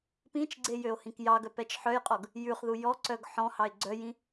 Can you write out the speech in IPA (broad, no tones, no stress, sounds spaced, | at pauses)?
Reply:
p ĩ t͡ʃ ɡ͡ǀ e j ø o̯ h ĩ k j ɑ ɡ œ p ɛ t͡ʃ ħ œ j qʼ ɔ ɡ | j ʉ χ ð u j ɔ ǀ œ ɡ ħ ɔ̃ h ɑ e̯ ɡ͡ǀ œ j ĩ